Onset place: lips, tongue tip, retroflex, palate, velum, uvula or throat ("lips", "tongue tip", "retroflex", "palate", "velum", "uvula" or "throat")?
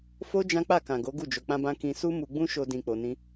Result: lips